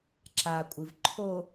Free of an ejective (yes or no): no